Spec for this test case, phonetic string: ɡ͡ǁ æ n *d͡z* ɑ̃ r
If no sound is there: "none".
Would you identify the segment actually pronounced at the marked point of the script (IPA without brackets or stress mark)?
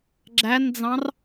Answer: d͡z